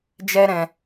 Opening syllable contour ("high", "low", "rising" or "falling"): high